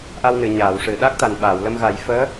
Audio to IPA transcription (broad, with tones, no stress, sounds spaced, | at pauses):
ʔ a˧ w n ɨ˨˩˨ ɲ aː˨˩˨ w ʂ ɨ˨˩˨ ɗ a˦˥ k̚ t̪ a˨˩ n ɓ aː˨˩˨ w l ə˧ m ɣ a˨˩˦ j f əː˧˥